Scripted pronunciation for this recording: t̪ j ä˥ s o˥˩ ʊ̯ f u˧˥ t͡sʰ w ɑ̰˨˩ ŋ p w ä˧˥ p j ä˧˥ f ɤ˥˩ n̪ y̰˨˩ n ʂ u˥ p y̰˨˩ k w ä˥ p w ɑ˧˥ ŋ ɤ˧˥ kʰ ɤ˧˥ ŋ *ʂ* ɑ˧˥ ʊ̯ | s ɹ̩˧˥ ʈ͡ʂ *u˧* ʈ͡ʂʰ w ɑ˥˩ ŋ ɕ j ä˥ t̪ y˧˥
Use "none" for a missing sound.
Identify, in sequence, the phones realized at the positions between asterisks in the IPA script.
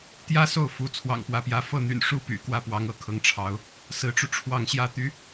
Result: ʈ͡ʂʰ, u˧

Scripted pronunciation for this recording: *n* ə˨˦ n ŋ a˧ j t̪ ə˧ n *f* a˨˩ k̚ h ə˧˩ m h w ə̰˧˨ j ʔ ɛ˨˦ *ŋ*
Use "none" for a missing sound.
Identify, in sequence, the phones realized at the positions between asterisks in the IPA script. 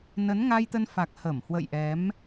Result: n, f, m

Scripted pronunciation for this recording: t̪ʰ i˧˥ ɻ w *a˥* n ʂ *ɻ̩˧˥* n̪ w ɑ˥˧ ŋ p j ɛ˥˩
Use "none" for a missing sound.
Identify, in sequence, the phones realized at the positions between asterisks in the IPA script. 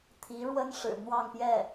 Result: ə˥, ɻ̩˨˩

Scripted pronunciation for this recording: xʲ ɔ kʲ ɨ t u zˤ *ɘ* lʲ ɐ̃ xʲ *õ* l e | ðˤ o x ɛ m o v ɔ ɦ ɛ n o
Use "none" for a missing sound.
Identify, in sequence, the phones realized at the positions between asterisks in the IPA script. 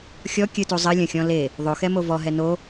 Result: ɘ, ɔ̃

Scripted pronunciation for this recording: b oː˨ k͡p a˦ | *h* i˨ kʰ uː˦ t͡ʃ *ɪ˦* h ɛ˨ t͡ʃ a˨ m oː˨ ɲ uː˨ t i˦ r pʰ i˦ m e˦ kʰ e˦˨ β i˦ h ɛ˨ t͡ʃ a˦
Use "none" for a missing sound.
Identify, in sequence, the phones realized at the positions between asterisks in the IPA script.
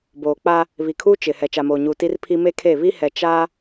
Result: β, ɪ˨

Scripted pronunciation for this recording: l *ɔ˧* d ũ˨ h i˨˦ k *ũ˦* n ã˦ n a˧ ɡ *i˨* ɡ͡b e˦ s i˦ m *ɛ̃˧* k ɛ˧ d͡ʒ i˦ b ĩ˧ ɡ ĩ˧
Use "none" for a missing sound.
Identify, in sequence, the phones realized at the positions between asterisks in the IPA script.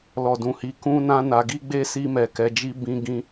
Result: ɔ˨, ũ˦, i˦, ɛ˧

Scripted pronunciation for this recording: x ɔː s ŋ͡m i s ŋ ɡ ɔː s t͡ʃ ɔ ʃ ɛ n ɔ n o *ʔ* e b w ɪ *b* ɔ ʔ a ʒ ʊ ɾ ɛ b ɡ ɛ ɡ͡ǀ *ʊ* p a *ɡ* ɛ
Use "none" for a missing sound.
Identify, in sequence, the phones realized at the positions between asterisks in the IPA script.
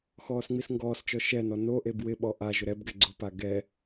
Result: ʔ, ɓ, ʊ, ɡ

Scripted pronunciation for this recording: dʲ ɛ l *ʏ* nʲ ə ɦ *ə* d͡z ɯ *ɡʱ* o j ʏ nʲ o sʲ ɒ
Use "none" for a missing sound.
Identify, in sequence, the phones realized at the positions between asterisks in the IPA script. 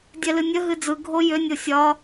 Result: ɨ, ɨ, ɡʱ

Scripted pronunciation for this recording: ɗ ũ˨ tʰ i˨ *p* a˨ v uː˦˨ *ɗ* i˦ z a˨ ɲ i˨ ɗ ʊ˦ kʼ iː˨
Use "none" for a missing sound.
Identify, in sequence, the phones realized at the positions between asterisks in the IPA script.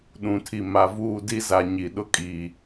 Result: m, d

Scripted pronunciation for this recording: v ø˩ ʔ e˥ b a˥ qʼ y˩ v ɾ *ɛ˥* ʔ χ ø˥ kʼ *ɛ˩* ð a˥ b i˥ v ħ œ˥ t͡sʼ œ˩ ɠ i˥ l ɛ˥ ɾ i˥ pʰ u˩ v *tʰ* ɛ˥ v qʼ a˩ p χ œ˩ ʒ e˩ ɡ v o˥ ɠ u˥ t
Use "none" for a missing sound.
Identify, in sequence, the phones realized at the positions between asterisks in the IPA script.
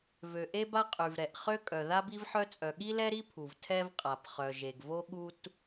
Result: ɛ˩, œ˩, tʰ

